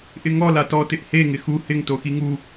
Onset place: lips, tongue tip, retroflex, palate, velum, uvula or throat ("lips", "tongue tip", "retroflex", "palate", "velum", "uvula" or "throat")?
throat